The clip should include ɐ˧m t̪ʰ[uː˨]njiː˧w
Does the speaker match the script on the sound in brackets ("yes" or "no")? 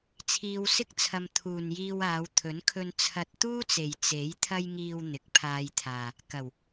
yes